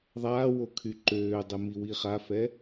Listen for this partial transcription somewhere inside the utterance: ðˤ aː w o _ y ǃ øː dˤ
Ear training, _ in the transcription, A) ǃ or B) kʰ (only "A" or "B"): B